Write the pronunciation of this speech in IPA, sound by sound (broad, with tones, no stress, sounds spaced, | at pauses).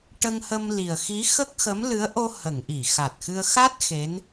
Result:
ʈ ə˧ ŋ h ə˧ m l i˨˩ ə̯ x i˧˥ x ə˦˥ k̚ x ə˧˥ m l ɨ˧˥ ə̯ ʔ o˧ h ə˨˩˨ ŋ ʔ i˨˩˨ x a˨˩ t̚ x ɨ˧ ə̯ x a˦˥ t̚ x e˧˥ n